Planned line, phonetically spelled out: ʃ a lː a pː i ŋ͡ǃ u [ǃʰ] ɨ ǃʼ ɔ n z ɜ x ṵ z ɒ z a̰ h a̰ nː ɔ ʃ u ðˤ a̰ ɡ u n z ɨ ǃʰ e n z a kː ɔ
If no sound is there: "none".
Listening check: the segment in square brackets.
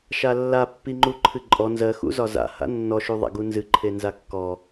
ǃʰ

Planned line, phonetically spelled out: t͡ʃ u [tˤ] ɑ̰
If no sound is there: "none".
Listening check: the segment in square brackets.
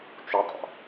tˤ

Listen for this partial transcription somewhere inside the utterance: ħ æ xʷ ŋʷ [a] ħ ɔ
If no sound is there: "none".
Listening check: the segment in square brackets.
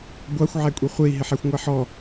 æ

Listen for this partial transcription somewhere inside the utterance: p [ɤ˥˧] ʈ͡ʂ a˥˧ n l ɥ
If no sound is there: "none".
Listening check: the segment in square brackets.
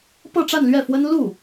ɤ˥˧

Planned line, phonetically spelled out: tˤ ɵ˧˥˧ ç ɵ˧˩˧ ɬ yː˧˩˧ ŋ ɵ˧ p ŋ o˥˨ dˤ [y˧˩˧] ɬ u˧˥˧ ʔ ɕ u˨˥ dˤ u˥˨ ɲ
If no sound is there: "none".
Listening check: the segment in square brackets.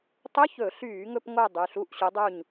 y˩˧˩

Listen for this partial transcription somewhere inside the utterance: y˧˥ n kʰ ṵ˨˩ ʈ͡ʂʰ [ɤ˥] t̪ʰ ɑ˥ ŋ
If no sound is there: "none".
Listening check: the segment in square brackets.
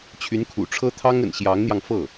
ɤ˥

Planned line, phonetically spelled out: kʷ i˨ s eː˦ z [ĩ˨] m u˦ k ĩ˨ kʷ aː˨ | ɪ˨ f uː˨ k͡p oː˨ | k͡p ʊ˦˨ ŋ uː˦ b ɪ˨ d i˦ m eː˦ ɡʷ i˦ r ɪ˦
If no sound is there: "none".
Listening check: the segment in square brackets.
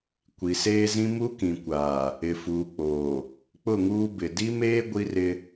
ĩ˦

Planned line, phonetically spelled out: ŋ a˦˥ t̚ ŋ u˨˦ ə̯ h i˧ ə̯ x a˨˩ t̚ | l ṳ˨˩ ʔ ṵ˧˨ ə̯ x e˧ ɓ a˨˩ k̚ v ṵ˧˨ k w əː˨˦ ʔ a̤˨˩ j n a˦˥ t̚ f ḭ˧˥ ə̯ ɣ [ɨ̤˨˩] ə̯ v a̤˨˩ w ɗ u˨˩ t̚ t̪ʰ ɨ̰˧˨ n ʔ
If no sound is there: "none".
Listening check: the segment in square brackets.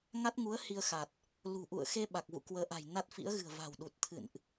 ɨ̤˨˩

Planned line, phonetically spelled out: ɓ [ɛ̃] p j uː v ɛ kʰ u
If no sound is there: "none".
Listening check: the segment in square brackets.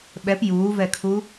ɛ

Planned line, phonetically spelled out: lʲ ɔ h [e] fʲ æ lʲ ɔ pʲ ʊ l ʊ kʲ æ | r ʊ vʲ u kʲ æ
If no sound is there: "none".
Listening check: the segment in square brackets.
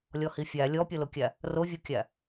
i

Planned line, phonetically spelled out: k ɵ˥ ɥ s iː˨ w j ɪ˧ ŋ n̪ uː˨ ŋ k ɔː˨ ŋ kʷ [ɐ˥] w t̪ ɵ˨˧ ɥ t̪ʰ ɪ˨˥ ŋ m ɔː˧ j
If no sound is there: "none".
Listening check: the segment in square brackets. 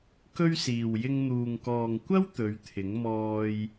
ɐ˥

